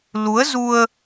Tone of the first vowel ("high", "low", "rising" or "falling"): rising